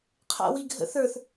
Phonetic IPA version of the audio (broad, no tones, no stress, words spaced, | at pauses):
qʰa̰wiɡʱə̰ θə˞θ